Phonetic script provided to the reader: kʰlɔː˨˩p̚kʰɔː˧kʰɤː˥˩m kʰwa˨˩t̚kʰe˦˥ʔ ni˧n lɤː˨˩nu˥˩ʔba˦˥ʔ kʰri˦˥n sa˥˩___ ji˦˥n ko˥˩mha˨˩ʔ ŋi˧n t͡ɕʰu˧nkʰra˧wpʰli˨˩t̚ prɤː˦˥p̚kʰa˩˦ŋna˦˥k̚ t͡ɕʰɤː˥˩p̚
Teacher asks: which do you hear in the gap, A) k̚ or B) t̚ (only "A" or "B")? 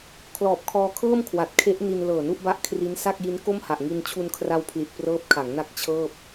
A